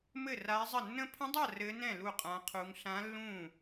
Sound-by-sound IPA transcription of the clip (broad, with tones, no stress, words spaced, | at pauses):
mɘ˥˧ra˦˥i̯zˤə˥˧ nːə̃˦˥pʰə̃˦˥dˤa˥˧ rɘ˦˥nɛ̃˥˧ lu˥˧qʼã˦˥qʰu˦˥ŋ ɬã˦˥lːũ˥˧